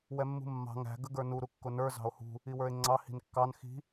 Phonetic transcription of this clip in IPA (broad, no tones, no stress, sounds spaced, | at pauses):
w ɛ mː ṳ mː ɑ̤ ŋ æ̤ ɡ ə ɡ ə˞ n u ɾ u kː ʊ n ə˞ z ɑ̤ o̯ h ṳ | i w ə˞ e̯ ŋ͡ǀ ɑ h i̤ n kː ɑ n x i̤